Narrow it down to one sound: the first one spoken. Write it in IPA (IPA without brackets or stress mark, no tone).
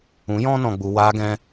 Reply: ũ